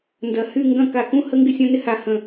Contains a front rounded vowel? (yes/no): yes